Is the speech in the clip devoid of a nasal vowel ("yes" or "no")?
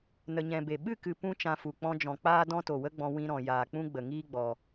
no